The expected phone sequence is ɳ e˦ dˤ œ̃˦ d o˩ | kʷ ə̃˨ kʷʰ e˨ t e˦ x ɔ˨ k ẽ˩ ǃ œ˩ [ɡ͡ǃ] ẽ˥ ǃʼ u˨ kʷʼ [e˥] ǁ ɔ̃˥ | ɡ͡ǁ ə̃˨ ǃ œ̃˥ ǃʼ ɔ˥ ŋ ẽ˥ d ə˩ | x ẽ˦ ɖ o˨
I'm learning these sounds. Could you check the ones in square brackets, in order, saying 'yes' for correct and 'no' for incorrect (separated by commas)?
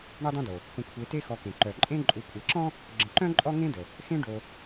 no, no